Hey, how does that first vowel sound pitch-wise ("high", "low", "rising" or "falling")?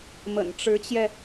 low